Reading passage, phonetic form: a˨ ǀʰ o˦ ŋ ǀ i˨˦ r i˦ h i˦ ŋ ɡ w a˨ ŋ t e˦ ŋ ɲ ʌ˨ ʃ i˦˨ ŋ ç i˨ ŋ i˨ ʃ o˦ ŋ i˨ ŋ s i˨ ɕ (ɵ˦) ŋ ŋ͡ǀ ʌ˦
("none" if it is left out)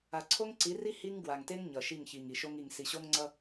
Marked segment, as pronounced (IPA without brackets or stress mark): o˦